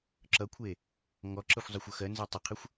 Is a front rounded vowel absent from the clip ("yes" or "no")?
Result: yes